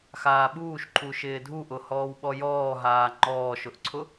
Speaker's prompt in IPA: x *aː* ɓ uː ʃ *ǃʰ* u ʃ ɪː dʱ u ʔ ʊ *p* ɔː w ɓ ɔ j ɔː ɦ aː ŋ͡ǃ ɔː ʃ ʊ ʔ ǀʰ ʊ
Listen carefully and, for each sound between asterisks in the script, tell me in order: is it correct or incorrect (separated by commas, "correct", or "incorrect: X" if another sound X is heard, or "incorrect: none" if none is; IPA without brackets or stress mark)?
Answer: correct, correct, incorrect: h